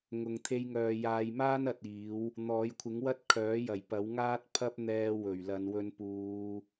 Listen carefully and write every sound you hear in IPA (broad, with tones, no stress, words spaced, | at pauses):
ŋʊ˨˧ŋ t̪ʰe˧jŋœː˨jaː˨˧jmaː˥n ɐ˨˥t̚iː˨˥w | n̪ɔː˨˥jkʷʰɪ˨˥ŋwɐ˥t̚ kʰœː˨˥jɐ˨˩j pɐ˨˥w ŋaː˥t̚pʰɐ˥p̚n̪ɛː˧ wɵ˨˩ɥlɐ˨˧n wɵ˧npuː˨˧